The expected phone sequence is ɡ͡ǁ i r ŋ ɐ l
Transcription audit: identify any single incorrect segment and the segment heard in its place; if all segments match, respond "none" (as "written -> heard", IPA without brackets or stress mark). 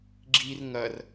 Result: l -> r